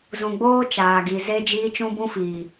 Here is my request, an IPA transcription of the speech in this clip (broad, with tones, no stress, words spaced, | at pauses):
zũ˨ɡ͡boː˦ t͡ʃaː˨ɡi˨ ze˦d͡ʒiː˦ t͡ʃũ˦bũ˦fiː˨